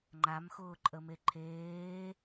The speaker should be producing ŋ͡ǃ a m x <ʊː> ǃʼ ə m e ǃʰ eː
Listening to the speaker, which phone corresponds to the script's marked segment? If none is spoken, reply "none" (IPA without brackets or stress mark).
ʊː